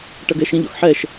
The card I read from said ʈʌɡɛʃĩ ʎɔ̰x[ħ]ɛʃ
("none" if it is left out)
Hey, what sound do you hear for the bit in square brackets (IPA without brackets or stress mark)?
ħ